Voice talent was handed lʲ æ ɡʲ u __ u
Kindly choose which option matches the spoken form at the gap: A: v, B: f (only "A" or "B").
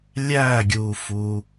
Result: B